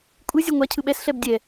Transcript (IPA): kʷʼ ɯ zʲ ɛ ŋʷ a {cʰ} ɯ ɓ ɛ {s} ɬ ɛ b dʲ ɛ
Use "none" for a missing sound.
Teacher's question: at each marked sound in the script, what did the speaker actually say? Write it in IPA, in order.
cʰ, s

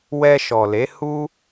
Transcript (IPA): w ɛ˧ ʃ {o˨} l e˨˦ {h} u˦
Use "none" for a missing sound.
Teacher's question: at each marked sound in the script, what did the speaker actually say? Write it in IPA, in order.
ɔ˨, h

